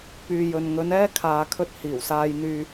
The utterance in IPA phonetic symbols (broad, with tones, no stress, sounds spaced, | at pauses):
p yː˨ j ɵ˨ n ŋ ɵ˨˧ n ɛː˥ kʰ aː˨ kʰ ɵ˧ t̚ h iː˨˩ w s aː˧ j n̪ yː˧